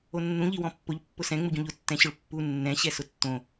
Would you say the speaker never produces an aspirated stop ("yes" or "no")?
yes